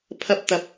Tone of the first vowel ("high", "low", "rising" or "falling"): high